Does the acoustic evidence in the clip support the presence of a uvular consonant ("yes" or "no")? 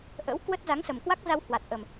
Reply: no